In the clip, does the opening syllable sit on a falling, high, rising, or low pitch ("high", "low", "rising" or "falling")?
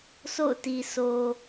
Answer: falling